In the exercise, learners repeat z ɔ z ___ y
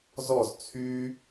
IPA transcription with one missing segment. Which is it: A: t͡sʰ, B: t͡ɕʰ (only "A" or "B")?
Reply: A